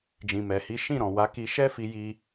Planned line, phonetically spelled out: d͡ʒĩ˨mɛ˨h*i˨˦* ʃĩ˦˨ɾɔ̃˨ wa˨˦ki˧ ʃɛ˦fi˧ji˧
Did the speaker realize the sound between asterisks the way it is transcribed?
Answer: yes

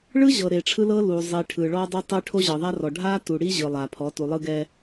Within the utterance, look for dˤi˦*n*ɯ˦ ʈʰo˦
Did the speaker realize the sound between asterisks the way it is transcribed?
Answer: no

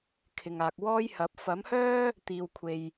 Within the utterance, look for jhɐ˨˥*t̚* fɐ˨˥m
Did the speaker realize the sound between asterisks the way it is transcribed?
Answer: no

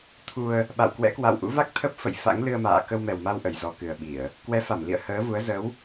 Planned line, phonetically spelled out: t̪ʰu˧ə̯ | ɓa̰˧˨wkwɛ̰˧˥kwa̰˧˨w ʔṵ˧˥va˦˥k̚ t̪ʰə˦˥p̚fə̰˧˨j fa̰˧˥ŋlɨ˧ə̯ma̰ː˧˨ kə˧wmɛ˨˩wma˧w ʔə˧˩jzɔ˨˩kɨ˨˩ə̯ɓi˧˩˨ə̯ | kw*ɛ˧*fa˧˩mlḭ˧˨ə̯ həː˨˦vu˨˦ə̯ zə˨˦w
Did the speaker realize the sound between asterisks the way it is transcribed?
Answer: no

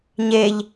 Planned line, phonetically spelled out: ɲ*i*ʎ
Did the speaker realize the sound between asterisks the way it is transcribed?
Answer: no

